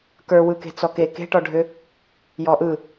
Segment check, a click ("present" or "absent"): absent